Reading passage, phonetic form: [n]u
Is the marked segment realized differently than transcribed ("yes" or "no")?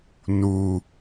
no